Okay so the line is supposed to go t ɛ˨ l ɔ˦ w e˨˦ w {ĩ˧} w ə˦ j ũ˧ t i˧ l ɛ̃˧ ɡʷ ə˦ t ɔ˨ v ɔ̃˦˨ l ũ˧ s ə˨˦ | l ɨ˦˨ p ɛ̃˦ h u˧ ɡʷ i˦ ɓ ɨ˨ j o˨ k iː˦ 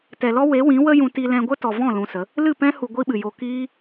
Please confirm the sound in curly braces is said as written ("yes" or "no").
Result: no